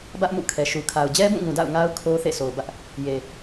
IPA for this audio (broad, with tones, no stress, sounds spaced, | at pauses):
b ä˦ ʔ m ṵ˦˨ kʰ ɛ˨ ʃ u˨ kʰ a˨ ʊ̯ d͡ʑ ɛ˦ b ũ˦˨ ŋ ũ˨ d a̰˦˨ ʊ̯ ŋ a˦ ʊ̯ kʰ o˦ θ ḛ˦˨ sʰ o˨ ʊ̯ b ä˦ ʔ | j e˨